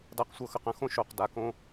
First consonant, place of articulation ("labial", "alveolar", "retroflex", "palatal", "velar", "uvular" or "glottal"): alveolar